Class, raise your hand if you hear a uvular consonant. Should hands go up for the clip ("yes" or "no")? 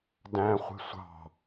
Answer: yes